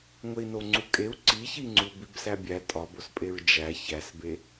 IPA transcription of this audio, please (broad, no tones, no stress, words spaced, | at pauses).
ŋʷei̯noŋ͡ǀukʼeu̯ ǀiçiŋ͡ǀu bibsæbʲæ tʼɒbospʼeɹ d͡ʒæ çæsbe